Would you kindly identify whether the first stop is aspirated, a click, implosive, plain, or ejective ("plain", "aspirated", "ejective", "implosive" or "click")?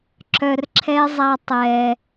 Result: click